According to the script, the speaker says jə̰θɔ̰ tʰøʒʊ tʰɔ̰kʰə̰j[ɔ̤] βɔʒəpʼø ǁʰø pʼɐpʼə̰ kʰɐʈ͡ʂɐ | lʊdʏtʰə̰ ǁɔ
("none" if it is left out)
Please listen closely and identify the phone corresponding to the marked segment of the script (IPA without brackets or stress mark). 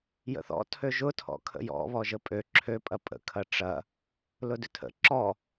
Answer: ɔ̰